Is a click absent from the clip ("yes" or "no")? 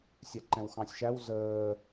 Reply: no